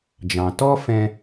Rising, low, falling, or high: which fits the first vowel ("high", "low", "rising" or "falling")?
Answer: low